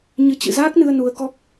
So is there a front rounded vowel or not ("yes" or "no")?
no